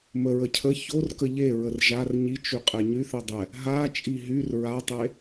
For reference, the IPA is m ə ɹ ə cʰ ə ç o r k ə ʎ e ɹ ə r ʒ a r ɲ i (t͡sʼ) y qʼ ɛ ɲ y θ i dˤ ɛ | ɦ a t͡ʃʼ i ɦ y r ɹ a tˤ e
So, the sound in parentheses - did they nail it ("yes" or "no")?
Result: no